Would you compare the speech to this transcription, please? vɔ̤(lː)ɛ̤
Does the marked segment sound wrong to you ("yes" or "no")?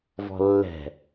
no